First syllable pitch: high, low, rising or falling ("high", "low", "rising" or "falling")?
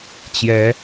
rising